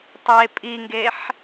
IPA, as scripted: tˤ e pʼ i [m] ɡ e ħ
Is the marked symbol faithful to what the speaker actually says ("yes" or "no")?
no